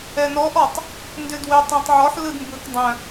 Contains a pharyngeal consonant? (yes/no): yes